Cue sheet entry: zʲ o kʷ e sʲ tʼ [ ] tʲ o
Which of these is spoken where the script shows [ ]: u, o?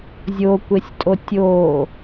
o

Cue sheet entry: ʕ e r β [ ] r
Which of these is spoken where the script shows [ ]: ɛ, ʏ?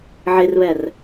ɛ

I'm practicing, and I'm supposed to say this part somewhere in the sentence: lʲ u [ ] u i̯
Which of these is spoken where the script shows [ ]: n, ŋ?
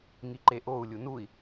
n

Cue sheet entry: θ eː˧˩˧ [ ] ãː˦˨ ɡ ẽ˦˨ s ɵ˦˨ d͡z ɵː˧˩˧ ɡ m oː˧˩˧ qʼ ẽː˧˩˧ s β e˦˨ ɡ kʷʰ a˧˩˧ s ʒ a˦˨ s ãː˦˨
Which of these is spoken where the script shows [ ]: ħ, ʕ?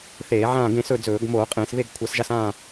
ʕ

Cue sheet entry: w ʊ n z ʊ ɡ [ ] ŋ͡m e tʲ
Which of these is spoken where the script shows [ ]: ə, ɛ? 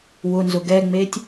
ɛ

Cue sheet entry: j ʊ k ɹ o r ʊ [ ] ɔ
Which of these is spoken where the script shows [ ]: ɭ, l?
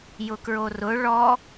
ɭ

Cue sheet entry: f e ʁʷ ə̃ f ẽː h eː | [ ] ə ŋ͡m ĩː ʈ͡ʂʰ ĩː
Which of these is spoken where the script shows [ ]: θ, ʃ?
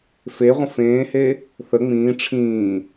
θ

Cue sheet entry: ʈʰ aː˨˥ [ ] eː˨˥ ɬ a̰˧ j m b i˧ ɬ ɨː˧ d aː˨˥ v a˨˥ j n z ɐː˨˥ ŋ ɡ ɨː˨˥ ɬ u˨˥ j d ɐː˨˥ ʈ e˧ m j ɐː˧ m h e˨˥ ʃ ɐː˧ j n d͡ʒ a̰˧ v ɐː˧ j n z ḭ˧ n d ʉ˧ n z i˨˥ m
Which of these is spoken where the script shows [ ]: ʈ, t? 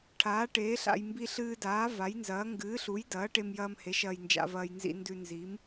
ʈ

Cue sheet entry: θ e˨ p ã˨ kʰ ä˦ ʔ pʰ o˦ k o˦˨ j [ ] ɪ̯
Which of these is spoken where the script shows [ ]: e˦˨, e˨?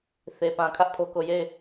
e˦˨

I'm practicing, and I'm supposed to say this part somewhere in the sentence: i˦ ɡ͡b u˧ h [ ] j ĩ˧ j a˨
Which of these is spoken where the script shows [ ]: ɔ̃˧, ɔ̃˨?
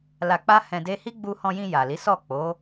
ɔ̃˧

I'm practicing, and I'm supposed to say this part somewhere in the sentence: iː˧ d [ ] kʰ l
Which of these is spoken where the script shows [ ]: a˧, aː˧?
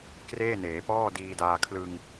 aː˧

